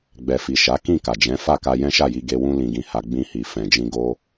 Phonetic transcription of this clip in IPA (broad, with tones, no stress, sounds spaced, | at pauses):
ɡ͡b ɛ˨ f i˨ ʃ a˨˦ k ĩ˦˨ k a˨ d͡ʒ ɛ̃˨˦ f a˦˨ k a˧ j ɛ̃˦ ʃ a˦˨ j i˧ ɡ e˧ w ũ˦ l ĩ˧ ɡ ĩ˧ h a˧ ɡ͡b ĩ˧ h i˨ f ɛ̃˨ d͡ʒ ĩ˧ ɡ o˦